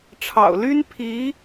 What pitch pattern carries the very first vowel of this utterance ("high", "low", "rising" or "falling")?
low